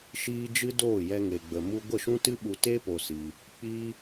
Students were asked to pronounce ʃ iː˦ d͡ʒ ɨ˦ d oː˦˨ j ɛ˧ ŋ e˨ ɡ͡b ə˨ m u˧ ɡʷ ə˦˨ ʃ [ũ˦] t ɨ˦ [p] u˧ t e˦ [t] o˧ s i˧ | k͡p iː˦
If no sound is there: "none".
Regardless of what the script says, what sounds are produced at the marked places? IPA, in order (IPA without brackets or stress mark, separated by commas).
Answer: ũ˦, ɓ, p